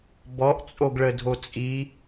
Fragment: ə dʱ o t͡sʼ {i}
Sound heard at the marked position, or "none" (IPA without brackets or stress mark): i